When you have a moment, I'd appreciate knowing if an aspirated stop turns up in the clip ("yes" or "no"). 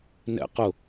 no